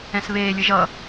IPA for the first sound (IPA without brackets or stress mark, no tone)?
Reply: ɛ̃